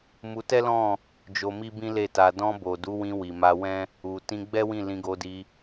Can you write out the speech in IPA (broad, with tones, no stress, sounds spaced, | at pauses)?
m u˧ t ɛ˦ l ɔ̃˦˨ | d͡ʒ o˧ m i˦ b ĩ˦ l e˦˨ t a˧ d ɔ̃˧ b o˨ d u˨˦ w ĩ˧ w i˨ m a˧ w ɛ̃˦ | u˨ t ĩ˧ ɡ͡b ɛ˦ w ĩ˦˨ l ĩ˧ ɡ o˧ d i˧